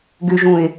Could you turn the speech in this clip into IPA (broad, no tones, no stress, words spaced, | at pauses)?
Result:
ɡʏʒũe̯